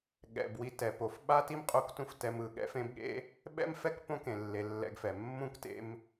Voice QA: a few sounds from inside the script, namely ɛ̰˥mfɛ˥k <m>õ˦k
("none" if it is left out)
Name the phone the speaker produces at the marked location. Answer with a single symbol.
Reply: p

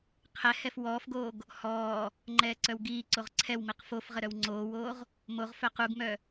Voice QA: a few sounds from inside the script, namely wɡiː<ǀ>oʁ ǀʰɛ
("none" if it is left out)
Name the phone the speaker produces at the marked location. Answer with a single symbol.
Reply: ǀ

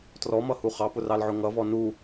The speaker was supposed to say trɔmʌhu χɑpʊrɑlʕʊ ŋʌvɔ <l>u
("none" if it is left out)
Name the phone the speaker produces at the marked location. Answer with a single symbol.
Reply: n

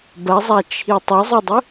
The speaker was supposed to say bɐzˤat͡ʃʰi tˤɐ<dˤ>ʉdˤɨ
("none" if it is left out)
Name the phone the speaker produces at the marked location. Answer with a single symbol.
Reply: zˤ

